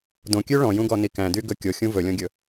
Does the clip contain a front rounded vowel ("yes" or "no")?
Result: yes